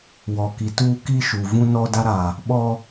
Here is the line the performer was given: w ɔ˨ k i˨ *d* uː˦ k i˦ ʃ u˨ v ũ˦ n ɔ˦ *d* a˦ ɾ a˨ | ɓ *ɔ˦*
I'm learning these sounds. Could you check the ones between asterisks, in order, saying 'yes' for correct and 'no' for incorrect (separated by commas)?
no, yes, yes